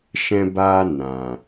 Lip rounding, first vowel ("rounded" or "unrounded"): unrounded